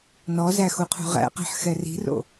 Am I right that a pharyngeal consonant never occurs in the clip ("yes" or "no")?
no